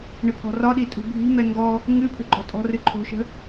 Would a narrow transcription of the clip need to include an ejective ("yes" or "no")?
yes